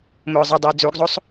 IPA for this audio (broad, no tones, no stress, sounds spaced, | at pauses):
m ʊː zˤ ɤ dˤ ɤ ə̯ d͡z u ɡ zˤ o sˤ